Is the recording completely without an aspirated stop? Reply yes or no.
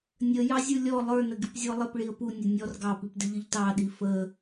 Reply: yes